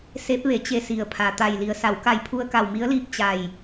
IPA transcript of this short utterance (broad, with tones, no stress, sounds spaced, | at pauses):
s e˧˥ p̚ ʋ e˩˧ t͡ɕ e˧˩ s i˩ ə̯ pʰ a˩ t̪ a˧˩ j l i˩˧ ə̯ s a˩˧ w k a˧˩ j pʰ u˧ ə̯ k a˧˩ w m i˧˥ ə̯ l iː˧ p̚ t͡ɕ a˧˩ j